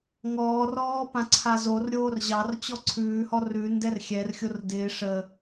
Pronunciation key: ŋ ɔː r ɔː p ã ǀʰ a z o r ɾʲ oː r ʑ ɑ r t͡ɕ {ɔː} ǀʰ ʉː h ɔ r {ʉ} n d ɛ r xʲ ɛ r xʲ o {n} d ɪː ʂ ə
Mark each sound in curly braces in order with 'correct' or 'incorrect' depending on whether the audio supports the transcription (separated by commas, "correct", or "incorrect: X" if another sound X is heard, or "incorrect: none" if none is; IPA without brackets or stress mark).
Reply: incorrect: ɔ, correct, incorrect: r